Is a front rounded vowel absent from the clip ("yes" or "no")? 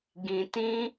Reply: yes